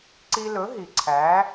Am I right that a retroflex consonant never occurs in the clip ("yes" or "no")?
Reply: yes